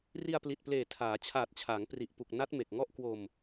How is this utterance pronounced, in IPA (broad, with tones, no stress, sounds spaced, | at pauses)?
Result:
r i˧ a̯ p l i˨˩ t̚ p l eː˨˩ tʰ aː˩˦ t͡ɕʰ aː˨˩ t̚ t͡ɕʰ aː˩˦ ŋ p r i˨˩ ʔ p u˨˩ k̚ n a˦˥ t̚ m e˨˩ k̚ ŋ ɔ˦˥ ʔ k w o˧ m